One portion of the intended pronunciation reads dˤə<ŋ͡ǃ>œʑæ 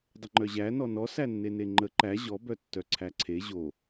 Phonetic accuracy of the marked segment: correct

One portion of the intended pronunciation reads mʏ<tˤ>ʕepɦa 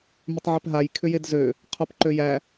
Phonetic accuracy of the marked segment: correct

